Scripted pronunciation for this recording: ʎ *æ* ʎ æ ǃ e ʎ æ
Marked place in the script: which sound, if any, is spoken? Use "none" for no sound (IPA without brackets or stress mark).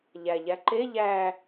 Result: æ